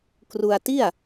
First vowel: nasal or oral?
oral